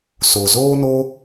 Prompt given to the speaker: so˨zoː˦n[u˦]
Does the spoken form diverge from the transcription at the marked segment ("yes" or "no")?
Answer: yes